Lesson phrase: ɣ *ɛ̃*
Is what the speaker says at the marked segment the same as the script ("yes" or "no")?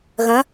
no